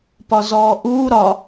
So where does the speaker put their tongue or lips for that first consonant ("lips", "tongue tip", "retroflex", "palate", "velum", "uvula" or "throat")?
lips